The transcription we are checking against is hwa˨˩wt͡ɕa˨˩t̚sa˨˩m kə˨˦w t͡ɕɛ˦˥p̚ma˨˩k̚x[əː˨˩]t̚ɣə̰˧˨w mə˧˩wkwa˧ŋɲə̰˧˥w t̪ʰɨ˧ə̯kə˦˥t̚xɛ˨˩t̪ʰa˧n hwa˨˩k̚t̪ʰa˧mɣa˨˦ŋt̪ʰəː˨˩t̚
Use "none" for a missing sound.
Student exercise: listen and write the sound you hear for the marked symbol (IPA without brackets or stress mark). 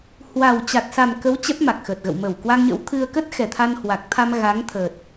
əː˨˩